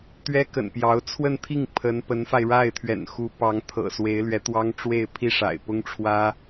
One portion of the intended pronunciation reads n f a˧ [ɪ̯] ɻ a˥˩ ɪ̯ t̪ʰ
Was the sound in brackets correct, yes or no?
yes